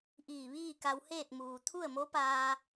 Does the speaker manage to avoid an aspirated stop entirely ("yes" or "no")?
no